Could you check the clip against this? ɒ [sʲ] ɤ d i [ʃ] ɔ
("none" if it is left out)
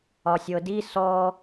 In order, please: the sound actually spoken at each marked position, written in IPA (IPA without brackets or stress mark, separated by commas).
sʲ, s